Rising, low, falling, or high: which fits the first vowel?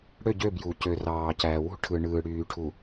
falling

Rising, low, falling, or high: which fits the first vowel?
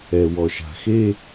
low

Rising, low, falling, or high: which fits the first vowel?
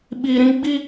low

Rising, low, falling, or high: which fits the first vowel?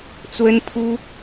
high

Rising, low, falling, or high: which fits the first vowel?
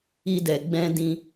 high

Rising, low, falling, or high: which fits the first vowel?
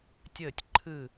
falling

